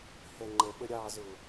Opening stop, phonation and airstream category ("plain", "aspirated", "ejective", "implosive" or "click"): click